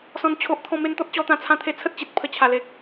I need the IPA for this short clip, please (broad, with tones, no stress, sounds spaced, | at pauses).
s ɔ̃˦ n t͡ɕʰ o˦ ʔ t̪ʰ ɔ̃˧ m e˧ n t̪ ɔ˦ t̚ t͡ɕ ɔ˧ t̪ ã˧ t͡sʰ ã˧ t̪ʰ e˧ t͡sʰ ə˦ t̚ t͡ɕ i˨ t̚ pʰ ə˨˩ t͡ɕʰ a˨˩ l e˨ k̚